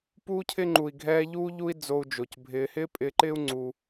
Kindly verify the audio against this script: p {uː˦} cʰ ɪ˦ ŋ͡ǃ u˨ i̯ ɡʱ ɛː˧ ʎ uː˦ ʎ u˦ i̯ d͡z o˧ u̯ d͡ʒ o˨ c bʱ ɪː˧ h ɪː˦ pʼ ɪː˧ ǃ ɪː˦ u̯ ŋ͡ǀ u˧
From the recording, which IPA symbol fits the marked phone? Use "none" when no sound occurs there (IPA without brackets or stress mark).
uː˦